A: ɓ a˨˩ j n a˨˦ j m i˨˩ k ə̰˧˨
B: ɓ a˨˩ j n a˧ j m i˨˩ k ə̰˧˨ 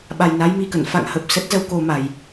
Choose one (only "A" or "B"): A